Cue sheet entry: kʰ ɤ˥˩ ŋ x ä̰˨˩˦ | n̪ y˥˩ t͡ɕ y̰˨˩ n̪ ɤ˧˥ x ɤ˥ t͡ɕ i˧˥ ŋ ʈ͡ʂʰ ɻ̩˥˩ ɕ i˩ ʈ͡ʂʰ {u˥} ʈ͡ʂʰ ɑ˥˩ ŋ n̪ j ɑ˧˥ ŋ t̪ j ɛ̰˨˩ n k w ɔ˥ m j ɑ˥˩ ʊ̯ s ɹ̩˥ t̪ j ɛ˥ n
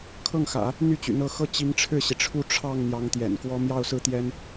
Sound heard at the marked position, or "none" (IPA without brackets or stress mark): u˥˧